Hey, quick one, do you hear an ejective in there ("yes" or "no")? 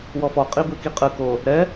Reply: yes